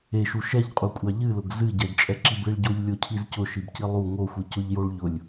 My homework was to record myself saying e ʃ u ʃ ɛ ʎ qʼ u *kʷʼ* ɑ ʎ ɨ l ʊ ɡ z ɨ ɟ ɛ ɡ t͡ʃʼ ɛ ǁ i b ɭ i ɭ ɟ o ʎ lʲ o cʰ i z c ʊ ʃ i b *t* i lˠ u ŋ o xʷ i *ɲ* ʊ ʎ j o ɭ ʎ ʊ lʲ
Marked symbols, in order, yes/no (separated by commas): yes, no, no